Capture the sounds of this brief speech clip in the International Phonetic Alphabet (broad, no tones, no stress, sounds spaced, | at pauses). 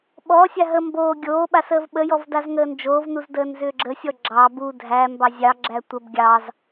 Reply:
ɓ ɔ sʲ a ɦ ə m b oː ɡʲ oː ɓ a s əː v ɓ ə j ɔ v d a z ŋ əː n d͡ʒ oː v n u z d əː n z ʏː ɡ͡ǁ ə sʲ ɔ ɡ͡ǁ ɑ b u dʱ æ m b ɑ zʲ ɑ ɡ͡ǁ æ tʷ ə b ɡʲ ɑ z